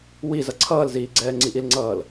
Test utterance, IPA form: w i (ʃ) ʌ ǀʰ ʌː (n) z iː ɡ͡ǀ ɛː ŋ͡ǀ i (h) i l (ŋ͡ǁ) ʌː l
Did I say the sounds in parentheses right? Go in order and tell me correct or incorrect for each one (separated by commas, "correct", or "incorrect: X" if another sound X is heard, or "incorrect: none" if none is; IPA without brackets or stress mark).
incorrect: z, incorrect: l, incorrect: ʔ, incorrect: ŋ͡ǀ